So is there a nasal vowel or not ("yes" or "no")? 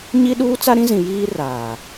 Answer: yes